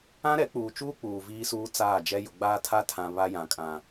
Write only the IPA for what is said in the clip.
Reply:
ã˦ɾɛ˨˦k͡puː˨t͡ʃuː˦ k͡puː˨viː˦suː˦ t͡saː˦˨d͡ʒɛ˦ jʊ˨ɡ͡baː˦tʰa˦tʰã˨ βa˦jã˨kʼã˨

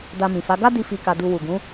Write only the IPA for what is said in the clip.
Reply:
da˧mĩ˨fa˨˦ ɡa˦di˧ fi˧ka˧du˧ wu˨ ɡũ˨˦

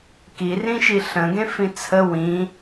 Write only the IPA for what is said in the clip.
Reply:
kirĩʃi ɬə̃ɡẽ fĩt͡sʰə wĩ

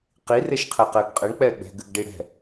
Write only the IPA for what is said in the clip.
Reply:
qi reʃqʰɛqɘːɡqʼɘɳ k͡pɛːɡ͡bɛ̤ ɡɨɡɖiɽɛ̤

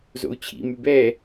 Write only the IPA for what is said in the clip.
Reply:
zo̰u̯t͡ɕʰḭ mybɛ

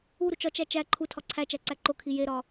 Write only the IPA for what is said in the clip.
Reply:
uɾut͡ʃ ɒt͡ʃæ t͡ʃæ ǃʰutʰɒ ǀʰæt͡ʃæǀæ ǃokʰi jeɾɒ

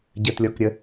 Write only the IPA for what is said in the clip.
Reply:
ɟətlʲɔkɾʲə

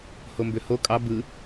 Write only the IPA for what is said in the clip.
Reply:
hombøho kʼɑ bɯ

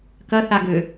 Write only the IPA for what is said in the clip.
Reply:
kɐθa ɡø

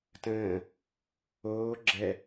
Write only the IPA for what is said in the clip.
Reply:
tə̃ː | oː ɡ͡ǁɛ

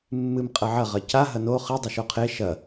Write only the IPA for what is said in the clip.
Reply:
mːɨm qʼɐʕɐ ʁɐca ɦɐno χɨ dˤɨʃoqʰe ʃɐ

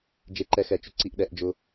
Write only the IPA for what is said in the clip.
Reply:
d͡ʒe˧ǃɛ˧xɛ˧˩˧t͡ʃʊ˧ ǀi˧ʔɗɛ˧˩˧ʔd͡ʒʊ˧

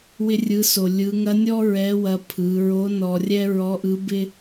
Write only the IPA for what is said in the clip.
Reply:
wɪ˧rʲɯ˩˧so˩ lʲɯ˩˧ŋɐ˧˥nʲɔ˥ ɹɛ˧˥wɐ˧ pʰɯ˩˧ɹo˧˥ nɔ˧rʲɛ˥ ɹɔ˧˥ʔɯ˧˥bɪ˥

